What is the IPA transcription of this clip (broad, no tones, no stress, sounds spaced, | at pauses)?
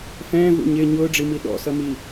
f ɛ̃ː v ṵ ɲ ɪ ɲ ʊː ɖ͡ʐ i m i ɗ ɔ̰ s ʌ m i